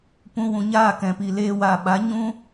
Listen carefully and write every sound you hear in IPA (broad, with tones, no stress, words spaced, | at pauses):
pũ˧wũ˨ɲaː˦˨ kɛ̃˨pi˨ leː˧wa˨ɓa˨˦ ɲũ˦